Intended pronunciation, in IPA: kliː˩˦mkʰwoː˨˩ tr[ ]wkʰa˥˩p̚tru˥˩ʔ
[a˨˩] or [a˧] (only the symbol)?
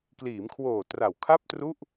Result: a˨˩